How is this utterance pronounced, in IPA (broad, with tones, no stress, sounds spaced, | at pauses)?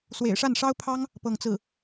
s w ḛ˨˩ ɪ̯ ʂ a˥˩ n ʂ ɑ˥ ʊ̯ pʰ ɑ˥ ŋ | p ɤ˥˧ ŋ t͡s ɹ̩˥˩